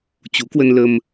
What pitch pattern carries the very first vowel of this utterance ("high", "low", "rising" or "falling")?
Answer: rising